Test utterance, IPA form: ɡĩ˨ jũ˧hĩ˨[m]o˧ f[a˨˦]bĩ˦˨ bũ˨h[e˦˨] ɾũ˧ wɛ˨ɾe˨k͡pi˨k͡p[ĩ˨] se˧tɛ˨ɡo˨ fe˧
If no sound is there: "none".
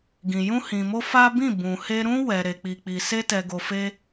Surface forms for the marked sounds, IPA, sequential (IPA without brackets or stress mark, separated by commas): m, a˦, e˧, i˨